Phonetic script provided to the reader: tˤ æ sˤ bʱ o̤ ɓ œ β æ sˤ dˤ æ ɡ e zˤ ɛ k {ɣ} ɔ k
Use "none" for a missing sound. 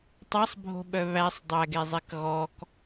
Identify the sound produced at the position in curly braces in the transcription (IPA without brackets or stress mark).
ɣ